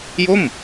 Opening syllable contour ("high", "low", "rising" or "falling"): falling